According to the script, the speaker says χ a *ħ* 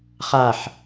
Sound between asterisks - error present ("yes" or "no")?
no